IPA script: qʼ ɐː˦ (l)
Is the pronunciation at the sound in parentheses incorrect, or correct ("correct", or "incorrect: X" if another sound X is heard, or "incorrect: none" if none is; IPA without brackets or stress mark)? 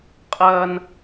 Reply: incorrect: n